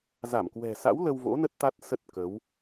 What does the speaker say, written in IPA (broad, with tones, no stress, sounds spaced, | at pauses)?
z a˧˩ m k w ɛ̤˨˩ s a̰˧˥ w l ə˧ w v o̰˧˥ n ə˦˥ t̚ t̪ a˦˥ t̚ s ə˦˥ t̚ k ə˨˦ w